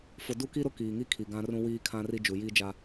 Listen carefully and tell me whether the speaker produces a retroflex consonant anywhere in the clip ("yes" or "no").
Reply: no